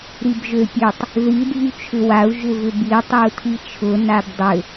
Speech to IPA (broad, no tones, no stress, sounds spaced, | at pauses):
ɾ i b ʒ ø pʲ ø tˤ | ð i dʱ y t͡ʃʰ ʏ w a u̯ ʒ ʏ v ʏ b i tˤ y u̯ tʰ i t͡ʃʰ ʊ n a b dˤ ʏ